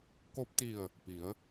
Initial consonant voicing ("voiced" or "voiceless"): voiceless